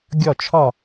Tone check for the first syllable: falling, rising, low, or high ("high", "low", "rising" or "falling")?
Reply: falling